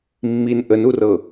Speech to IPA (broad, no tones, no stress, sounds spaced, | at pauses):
mː i n ʔ ə n u r ɤ